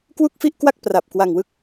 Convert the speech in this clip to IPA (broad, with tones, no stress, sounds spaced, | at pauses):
k w u˥˩ k̚ f i˥˩ ʔ k w a˥˩ k̚ p r a˨˩ p̚ k w a˧ ŋ w ɯ˦˥ k̚